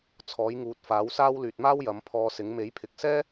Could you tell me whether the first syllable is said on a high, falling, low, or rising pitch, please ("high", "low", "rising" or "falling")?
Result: rising